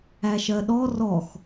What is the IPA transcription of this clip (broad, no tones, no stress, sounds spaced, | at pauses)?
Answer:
æ ʃ ɜ ɗ ɔ r ɔ x